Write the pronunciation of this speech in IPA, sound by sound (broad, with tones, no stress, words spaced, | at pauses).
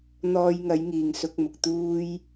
n̪ɔː˧jŋɐ˨˥j ŋiː˨ŋsʊ˧k̚mʊ˨k̚ t̪uː˥j